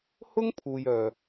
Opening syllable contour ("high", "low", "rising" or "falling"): high